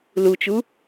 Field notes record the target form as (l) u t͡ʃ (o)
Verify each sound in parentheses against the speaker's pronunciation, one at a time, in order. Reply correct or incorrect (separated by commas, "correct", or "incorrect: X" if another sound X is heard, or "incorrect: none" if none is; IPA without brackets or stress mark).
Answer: correct, incorrect: u